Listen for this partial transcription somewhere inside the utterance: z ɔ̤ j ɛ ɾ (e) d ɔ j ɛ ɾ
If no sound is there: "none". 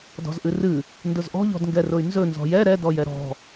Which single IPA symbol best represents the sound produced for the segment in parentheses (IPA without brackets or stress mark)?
ɛ